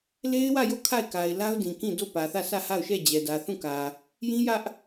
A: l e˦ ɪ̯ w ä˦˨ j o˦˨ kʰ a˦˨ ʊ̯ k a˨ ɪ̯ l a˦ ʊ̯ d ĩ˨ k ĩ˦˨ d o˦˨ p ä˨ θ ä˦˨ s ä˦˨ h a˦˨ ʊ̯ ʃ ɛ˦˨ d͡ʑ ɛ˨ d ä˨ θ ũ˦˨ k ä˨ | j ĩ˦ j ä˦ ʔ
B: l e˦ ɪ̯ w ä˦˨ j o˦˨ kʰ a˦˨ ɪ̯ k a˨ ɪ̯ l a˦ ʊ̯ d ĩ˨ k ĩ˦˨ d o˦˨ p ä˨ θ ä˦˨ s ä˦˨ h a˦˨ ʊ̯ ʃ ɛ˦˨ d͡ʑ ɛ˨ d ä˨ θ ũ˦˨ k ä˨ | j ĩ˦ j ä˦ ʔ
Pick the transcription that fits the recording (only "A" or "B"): B